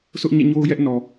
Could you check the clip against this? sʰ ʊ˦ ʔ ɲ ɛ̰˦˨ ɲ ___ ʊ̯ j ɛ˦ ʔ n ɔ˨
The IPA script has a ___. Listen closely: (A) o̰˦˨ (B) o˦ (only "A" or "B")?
B